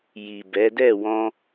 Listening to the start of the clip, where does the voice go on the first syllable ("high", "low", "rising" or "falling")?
low